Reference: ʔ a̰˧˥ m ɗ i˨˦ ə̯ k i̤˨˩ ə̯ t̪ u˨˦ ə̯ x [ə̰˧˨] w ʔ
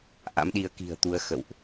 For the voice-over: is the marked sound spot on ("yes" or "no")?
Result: yes